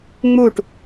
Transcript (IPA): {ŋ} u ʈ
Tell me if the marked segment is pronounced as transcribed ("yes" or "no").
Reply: no